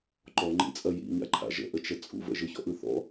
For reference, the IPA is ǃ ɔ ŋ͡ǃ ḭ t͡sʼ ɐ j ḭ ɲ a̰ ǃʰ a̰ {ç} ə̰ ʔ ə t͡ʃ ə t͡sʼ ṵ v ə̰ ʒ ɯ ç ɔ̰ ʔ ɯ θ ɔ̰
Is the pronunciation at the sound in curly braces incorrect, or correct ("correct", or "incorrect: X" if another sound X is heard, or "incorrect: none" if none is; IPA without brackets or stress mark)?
incorrect: ʒ